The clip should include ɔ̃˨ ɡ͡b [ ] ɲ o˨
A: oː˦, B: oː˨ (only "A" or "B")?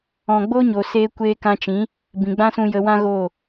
A